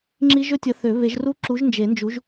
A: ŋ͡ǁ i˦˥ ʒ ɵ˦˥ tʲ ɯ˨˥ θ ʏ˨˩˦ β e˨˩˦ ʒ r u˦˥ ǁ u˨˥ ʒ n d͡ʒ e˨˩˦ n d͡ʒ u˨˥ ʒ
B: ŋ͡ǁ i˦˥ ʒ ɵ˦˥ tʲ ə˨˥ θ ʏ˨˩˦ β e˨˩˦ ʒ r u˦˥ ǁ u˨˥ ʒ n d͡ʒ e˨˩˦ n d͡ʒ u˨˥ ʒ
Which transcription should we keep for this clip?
B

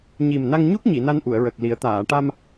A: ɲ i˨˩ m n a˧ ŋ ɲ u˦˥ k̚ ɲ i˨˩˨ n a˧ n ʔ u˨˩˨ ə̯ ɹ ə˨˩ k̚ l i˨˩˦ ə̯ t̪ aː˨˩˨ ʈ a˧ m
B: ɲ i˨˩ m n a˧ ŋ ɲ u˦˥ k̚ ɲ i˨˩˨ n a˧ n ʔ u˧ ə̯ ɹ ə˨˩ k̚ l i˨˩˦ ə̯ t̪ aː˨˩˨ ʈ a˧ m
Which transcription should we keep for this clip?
A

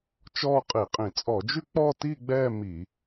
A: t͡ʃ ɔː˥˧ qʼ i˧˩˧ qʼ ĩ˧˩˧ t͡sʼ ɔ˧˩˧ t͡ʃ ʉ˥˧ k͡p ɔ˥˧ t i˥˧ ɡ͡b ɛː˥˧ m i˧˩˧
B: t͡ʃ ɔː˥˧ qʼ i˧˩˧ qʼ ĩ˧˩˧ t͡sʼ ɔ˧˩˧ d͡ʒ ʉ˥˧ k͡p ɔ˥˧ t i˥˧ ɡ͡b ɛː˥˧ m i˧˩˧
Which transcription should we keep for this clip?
B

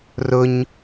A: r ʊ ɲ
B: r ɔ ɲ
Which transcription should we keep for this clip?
A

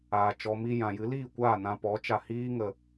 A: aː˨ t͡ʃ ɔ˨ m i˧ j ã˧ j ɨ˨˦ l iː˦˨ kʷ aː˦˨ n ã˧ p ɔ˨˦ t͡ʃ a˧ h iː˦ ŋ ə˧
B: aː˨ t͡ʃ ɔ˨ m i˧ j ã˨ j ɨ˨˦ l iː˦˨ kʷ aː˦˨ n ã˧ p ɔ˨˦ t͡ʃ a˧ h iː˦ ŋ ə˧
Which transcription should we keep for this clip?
B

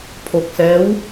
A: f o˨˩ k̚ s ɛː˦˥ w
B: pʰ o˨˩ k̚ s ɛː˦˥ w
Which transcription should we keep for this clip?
B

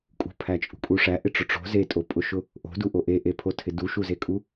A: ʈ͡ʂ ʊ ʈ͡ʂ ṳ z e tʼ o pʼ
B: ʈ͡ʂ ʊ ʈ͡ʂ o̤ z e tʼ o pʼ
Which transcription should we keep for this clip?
B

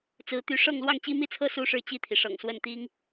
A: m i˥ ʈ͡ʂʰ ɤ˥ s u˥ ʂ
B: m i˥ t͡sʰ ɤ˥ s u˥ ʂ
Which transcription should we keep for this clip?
B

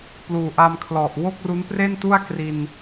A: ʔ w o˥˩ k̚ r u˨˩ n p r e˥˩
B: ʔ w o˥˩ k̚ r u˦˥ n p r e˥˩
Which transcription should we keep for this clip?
B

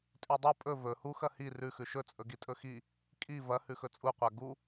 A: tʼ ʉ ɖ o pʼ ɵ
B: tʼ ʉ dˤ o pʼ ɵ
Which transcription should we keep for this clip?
B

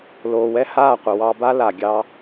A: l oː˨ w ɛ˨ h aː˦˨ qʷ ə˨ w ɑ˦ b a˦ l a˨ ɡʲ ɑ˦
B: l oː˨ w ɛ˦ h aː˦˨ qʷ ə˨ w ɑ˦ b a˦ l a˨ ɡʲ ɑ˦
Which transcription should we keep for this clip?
B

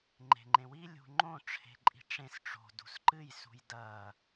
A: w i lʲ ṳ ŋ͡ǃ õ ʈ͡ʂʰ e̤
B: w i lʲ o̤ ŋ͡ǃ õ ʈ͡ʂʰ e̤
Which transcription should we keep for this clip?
A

